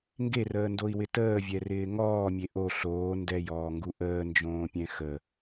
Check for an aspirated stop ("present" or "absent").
absent